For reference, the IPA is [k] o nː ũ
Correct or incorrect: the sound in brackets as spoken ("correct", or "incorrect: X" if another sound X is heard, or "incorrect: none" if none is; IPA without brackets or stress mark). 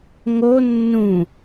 incorrect: ŋ